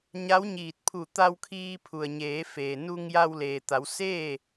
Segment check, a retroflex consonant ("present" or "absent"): absent